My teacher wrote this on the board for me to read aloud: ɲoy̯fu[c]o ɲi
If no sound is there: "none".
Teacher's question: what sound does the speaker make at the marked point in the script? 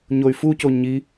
c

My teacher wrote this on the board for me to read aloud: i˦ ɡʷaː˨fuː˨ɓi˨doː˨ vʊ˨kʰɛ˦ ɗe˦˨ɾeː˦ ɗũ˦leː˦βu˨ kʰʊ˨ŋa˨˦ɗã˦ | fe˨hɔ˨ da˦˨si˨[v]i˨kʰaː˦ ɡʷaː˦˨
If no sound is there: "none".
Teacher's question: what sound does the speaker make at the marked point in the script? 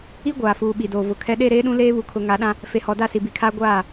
b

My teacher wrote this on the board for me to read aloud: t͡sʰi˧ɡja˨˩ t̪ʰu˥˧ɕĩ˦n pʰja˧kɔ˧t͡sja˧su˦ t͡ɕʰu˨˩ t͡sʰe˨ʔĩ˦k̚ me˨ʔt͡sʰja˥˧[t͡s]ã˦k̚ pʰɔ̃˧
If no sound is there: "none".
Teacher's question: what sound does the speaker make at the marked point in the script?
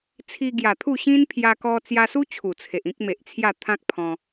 t̪ʰ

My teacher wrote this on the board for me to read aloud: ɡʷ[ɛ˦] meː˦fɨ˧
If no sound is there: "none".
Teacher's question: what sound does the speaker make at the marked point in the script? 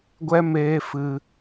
ɛ˦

